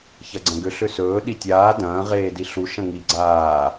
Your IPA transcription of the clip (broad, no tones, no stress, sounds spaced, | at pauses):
ç ɐ ɡ͡ǀ ɐ̃ ɡ ʏ ɬ ʏ s ɵː ɗ i tʲ aː d ɐ̃ː ʁ eː d i ɬ u ʃ ɐ̃ ŋ i ɡ͡ǀ aː